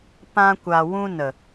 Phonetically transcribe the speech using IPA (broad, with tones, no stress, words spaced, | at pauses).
pã˧kʷa˨ wũ˧nə˨